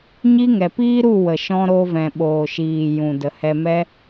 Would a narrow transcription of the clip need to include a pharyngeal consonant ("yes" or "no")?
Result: no